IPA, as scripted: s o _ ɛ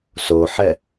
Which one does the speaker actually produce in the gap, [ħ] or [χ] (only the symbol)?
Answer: ħ